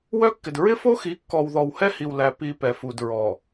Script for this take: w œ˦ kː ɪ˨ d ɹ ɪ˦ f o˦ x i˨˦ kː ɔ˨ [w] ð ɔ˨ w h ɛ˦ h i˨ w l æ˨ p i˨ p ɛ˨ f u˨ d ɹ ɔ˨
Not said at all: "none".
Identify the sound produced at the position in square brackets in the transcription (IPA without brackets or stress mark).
w